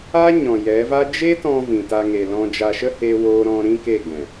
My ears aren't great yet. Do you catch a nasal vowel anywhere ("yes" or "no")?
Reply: yes